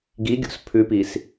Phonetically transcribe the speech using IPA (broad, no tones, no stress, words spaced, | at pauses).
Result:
ɡiɡʲo̰s pʰʉpis